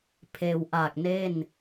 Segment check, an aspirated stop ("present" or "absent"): present